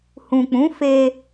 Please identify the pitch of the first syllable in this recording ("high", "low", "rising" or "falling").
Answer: low